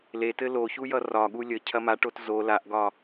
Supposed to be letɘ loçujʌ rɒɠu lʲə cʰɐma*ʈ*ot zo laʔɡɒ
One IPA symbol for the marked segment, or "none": ʈ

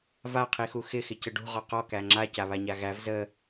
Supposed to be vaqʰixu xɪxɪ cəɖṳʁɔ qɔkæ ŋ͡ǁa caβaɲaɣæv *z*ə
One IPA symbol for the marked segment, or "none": z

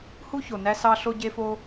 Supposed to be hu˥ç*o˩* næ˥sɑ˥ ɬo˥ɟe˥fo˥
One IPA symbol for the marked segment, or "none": o˩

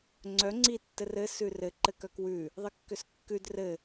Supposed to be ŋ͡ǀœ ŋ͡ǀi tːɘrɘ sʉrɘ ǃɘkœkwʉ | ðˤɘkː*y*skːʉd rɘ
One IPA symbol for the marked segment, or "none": ʏ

